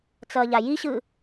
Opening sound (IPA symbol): t͡s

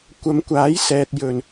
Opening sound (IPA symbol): kʷ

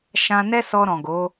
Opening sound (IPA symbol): ʃ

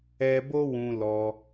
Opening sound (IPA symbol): ɛ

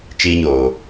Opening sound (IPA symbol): t͡ʃ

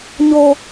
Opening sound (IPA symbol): ɲ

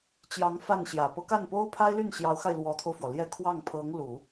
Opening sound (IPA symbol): t͡ɕ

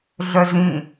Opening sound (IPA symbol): ɮ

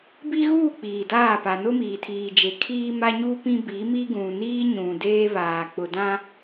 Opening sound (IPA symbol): b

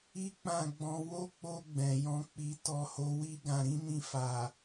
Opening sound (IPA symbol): i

